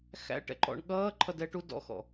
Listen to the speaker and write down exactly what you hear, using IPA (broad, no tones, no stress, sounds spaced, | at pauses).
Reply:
x æ̰ ʈ ɛ̰ ǃ ɔ̰ ɳ ɠ ʌː ǃʰ ʌ d ɛ ʈ u d ɔ̰ x ɔ̰